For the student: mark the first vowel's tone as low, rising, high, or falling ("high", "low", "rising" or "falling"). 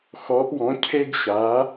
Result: rising